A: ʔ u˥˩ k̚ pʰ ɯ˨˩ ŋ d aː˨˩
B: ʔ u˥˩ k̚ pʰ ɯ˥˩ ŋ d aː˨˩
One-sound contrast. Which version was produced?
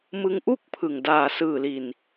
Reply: A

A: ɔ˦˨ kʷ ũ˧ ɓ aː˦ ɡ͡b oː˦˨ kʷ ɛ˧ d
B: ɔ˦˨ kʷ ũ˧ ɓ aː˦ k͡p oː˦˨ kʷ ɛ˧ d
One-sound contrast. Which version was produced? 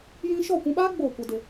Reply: A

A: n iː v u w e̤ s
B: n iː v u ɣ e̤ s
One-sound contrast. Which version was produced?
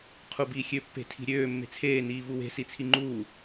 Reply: A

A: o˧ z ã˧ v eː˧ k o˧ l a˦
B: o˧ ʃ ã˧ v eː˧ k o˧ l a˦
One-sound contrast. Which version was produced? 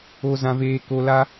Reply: A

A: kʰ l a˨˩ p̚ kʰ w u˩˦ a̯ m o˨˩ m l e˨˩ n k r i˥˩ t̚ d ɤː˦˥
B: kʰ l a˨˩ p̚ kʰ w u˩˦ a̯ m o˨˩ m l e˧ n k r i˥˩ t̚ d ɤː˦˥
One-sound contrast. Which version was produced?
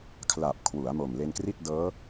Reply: B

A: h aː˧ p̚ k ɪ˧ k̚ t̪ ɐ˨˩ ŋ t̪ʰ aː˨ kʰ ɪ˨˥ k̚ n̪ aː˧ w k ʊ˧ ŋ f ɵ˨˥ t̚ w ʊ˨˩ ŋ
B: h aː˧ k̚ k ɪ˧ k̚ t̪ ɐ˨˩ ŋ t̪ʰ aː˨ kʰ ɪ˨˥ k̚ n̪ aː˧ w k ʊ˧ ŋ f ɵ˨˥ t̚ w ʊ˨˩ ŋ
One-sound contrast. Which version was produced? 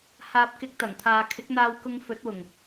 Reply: A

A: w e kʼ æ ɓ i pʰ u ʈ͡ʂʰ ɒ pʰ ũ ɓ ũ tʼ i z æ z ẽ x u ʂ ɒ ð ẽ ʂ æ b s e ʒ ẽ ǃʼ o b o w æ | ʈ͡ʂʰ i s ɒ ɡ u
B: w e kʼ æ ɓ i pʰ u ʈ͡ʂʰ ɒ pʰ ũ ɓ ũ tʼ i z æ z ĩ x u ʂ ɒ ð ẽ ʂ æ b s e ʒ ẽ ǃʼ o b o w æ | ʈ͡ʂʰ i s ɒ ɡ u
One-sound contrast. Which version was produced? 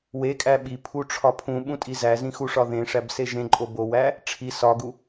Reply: B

